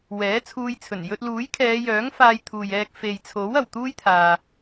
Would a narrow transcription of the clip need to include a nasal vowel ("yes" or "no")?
no